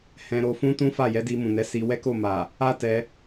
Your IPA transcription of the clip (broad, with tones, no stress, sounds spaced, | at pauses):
h ɛ̃˧ ɾ o˧ f ũ˦ t ũ˦ f a˦˨ j ɛ˨˦ d i˧ m ũ˨ n ɛ˨˦ s i˧ w ɛ˦ k o˦˨ m a˨ | a˦ t ɛ˧